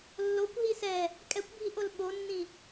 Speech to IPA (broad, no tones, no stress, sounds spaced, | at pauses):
lː o kʷ ɦ i s ɛ | kʼ ɛ kʷ bʱ i ʔ o l ɓ o nː ĩ